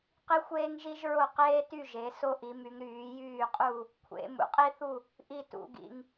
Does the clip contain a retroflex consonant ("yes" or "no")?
no